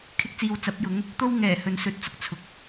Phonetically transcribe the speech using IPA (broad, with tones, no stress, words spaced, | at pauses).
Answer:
kʰɪ˥k̚t͡siː˧wt͡sɐ˨˥p̚jʊ˨˥ŋ | t̪o˥wŋɛː˨˩ hɵ˨nsɵ˨˥t̚t͡sʊ˨˥k̚ t͡sʰʊ˨k̚